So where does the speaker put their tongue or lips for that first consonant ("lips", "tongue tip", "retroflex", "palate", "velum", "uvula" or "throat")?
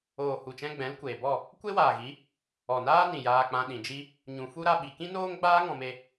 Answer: throat